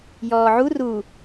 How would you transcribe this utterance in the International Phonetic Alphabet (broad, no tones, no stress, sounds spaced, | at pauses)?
j ɔː ʕ u r u